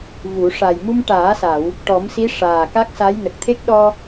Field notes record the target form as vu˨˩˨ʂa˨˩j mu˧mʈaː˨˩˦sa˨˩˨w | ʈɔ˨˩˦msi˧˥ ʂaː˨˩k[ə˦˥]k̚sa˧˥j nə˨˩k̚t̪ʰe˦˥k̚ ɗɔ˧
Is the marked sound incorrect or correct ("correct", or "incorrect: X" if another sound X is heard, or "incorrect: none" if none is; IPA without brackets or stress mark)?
incorrect: a˦˥